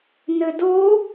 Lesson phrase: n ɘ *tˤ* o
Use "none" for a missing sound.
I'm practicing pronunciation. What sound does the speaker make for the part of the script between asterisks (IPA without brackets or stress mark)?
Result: d